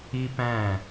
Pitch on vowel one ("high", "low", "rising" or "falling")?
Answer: high